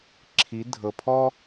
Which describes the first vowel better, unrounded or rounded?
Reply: unrounded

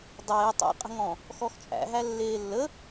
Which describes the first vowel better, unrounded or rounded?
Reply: unrounded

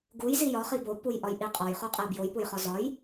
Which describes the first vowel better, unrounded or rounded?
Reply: rounded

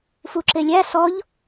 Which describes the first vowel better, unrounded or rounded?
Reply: rounded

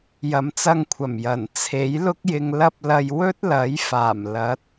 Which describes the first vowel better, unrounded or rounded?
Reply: unrounded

